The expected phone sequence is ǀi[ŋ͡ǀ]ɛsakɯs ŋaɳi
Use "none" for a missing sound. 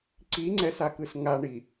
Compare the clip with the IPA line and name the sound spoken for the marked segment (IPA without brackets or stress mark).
ŋ͡ǀ